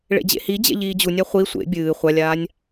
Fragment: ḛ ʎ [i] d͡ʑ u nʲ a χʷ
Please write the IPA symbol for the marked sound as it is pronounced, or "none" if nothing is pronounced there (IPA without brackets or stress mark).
iː